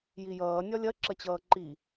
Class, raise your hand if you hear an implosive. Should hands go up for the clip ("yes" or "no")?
no